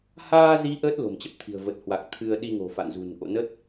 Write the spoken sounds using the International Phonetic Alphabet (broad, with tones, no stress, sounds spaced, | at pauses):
h aː˧ z i˨˦ ʔ əː˦˥ t̚ l o̤˨˩ m t͡ɕ ə˦˥ p̚ t̪ʰ i̤˨˩ ə̯ v ə˨˩ t̚ h w a˨˩ k̚ t̪ʰ ɨ˧ ə̯ ɗ i˧ ŋ o̤˨˩ f a̰˧˨ n z ṳ˨˩ n ʔ o̰˧˨ n ə˦˥ t̚